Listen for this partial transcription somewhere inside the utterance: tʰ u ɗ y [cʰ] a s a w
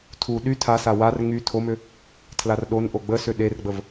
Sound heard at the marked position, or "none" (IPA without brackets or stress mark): tʰ